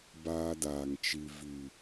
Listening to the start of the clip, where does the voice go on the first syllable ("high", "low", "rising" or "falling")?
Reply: high